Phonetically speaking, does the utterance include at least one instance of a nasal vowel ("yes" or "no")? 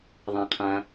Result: yes